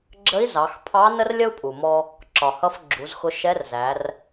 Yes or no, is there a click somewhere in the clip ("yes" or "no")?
yes